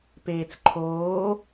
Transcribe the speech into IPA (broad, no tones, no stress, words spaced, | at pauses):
peːt͡sǃʰoː